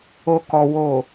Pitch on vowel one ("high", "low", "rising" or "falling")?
low